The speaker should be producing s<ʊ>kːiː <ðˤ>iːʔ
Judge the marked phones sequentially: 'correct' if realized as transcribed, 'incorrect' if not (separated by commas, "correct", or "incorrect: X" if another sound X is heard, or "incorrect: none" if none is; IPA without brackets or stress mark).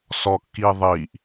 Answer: incorrect: ɔ, correct